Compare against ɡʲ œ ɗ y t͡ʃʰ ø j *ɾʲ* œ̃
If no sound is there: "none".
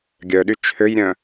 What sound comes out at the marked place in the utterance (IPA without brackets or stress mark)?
ɾʲ